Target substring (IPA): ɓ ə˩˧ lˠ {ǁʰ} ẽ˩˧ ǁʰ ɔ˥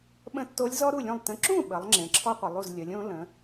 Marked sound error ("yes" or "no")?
yes